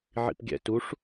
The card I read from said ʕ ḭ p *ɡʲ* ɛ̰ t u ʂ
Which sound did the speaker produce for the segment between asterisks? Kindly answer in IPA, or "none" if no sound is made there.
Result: ɡʲ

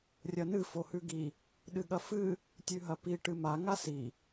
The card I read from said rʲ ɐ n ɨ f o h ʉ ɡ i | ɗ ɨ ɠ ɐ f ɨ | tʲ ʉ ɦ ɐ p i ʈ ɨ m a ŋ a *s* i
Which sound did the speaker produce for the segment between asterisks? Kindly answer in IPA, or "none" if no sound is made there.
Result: s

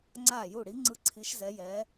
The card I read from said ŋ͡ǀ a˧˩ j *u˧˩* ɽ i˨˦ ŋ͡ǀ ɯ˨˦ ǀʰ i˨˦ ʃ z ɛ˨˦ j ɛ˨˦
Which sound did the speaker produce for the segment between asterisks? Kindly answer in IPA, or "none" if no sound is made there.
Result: u˧˩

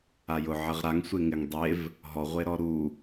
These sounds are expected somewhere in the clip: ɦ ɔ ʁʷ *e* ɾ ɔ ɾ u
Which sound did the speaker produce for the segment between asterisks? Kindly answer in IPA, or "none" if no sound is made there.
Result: e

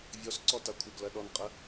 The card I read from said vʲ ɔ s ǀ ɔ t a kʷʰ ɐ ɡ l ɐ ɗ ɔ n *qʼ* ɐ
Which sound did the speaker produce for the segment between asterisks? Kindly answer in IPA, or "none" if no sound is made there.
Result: qʼ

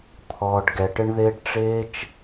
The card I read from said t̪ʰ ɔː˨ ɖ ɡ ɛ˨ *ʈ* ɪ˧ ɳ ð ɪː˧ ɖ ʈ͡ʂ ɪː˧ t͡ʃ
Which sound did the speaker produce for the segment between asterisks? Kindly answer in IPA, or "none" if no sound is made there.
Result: ʈ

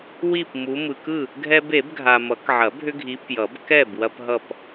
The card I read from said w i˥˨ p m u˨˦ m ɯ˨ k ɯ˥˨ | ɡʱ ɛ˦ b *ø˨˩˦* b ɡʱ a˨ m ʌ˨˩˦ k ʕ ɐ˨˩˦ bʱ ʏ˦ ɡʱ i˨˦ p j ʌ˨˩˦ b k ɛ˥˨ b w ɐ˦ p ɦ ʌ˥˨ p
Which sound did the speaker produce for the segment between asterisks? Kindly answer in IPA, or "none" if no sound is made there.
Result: e˨˩˦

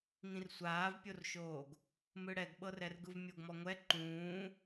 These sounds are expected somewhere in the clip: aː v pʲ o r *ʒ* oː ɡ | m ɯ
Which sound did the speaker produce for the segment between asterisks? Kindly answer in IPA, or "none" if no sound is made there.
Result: ʃ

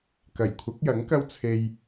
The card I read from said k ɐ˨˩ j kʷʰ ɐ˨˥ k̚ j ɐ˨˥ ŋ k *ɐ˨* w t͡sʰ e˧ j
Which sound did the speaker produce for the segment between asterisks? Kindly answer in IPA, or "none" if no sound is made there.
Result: ɐ˥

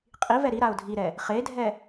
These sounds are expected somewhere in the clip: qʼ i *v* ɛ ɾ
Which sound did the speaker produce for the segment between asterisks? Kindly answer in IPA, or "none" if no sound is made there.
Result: v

